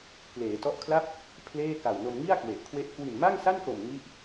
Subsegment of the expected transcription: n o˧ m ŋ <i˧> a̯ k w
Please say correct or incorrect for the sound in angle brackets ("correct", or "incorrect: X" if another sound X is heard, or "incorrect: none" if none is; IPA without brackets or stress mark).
incorrect: i˥˩